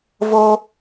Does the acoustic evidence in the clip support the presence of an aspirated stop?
no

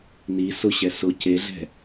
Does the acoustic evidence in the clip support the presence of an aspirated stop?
yes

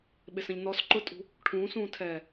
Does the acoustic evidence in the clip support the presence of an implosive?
yes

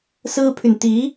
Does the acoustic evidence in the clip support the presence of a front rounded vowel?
yes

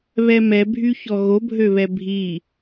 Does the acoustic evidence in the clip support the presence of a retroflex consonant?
no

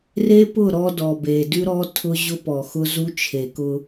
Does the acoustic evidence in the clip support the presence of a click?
no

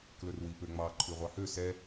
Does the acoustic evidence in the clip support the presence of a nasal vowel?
no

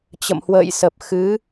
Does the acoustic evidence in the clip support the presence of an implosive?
no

